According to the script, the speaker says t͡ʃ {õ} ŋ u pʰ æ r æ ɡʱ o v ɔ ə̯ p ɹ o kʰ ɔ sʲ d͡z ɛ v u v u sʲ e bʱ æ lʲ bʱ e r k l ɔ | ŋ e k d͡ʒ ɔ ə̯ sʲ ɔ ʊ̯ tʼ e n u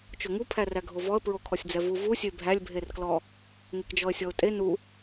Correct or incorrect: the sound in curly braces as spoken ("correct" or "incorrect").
incorrect